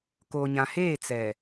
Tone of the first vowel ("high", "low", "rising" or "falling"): low